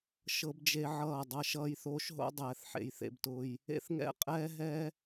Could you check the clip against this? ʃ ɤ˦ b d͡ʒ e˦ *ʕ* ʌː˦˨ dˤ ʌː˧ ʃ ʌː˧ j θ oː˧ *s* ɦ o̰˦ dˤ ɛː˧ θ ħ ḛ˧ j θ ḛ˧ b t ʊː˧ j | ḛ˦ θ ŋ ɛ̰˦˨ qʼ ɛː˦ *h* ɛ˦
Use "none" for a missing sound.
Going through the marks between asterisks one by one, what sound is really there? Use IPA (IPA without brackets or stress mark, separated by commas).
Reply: ʕ, ʃ, ɦ